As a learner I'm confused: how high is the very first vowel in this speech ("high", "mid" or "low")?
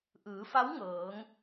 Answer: high